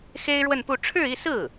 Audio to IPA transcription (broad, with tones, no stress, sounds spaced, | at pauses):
x e˥ ɪ̯ ɻ w ə˥˧ n p u˥˧ ʈ͡ʂʰ ɻ̩˥˧ i˥˧ s ɹ̩˥˩